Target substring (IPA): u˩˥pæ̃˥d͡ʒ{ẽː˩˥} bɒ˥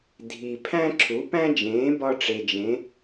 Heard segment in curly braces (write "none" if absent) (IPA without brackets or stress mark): ẽː˩˥